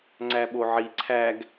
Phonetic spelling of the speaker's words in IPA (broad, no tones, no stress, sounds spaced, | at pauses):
ŋ͡ǀ æ ɓ o ʕ i ǀʰ æ ɡ